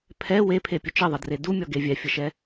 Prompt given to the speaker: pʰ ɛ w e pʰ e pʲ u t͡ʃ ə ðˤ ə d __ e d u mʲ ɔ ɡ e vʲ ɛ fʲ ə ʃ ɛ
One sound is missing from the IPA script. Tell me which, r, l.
r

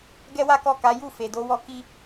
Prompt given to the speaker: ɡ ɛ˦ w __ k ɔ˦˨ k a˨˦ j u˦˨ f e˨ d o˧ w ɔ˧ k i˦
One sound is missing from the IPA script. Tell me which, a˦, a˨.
a˦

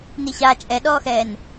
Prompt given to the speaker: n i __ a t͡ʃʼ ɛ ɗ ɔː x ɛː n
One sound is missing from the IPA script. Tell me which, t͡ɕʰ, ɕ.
ɕ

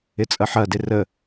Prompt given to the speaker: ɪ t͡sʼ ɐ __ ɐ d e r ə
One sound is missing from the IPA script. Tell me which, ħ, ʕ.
ħ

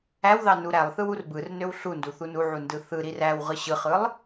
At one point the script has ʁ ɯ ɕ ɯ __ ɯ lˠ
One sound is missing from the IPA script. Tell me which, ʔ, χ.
χ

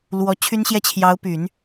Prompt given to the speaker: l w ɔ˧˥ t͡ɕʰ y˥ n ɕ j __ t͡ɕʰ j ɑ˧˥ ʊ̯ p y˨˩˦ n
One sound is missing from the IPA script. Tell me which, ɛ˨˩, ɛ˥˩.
ɛ˥˩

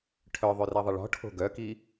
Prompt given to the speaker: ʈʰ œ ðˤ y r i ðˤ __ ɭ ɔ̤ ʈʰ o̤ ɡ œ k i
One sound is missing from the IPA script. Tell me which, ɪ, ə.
ɪ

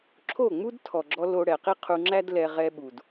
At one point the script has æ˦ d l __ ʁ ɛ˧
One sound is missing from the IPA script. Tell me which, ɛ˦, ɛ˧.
ɛ˧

